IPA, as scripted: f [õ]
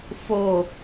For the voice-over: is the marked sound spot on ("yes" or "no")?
no